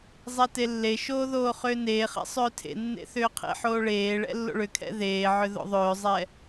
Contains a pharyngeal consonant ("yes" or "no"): yes